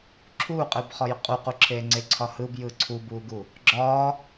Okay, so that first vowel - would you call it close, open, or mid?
close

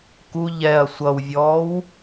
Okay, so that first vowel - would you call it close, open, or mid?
close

